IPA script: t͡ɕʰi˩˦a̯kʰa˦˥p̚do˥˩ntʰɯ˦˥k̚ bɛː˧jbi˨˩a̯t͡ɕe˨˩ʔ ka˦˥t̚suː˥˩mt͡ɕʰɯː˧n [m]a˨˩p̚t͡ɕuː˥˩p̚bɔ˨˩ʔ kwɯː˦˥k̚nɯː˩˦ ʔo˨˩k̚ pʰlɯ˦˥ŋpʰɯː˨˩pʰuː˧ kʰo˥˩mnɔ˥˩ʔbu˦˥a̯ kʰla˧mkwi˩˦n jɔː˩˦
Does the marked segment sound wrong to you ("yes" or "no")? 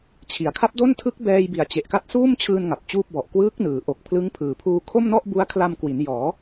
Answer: yes